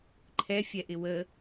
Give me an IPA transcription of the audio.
ǃʰ ɛ fʲ ɛ ʔ ɪ w ə

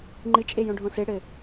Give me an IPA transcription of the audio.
ŋ͡ǃ ɨ t͡ʃʼ e j õ ɖʱ õ s e ɽ ɘ

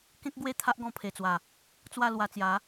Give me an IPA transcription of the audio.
k ẽ˦ k̚ ɡ w e˥˧ t̪ʰ a˦ ʔ ɡ ɔ̃˧ pʰ e˨˩ t͡s w a˨˩ | t͡s w a˥˧ l w a˧ t͡s j a˨˦

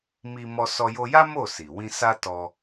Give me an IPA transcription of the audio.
m i˧ m ɔ˧ s ɔ˧ j o˧ j a˦ m o˦˨ s i˨ w ĩ˧ s a˦ t ɔ˧

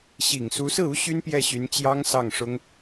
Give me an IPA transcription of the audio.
ɕ i˨˩ ŋ s u˧˥ s ɹ̩˥˩ u˥ ɕ y˥ n p j ɛ˥˩ ɕ y˧˥ n t͡ɕ j ɑ˥ ŋ s ɑ˥˩ ŋ ʂ ʊ˥ ŋ

